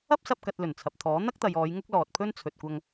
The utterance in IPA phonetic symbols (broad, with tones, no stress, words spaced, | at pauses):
ɐ˥p̚sɐ˧p̚ kɐ˧t̚lɵ˨˩nt͡sʰɐ˨p̚t̪ʰɔː˨˥ n̪ɐ˥k̚t̪ɐ˨jɔː˨˧j ŋʊ˥k̚lɔː˨t̚pʰɵ˥n t͡sʰɵ˨t̚kʷɐ˧ŋ